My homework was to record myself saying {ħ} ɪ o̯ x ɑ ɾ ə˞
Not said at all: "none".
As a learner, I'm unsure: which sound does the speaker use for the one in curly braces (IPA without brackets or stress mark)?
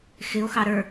x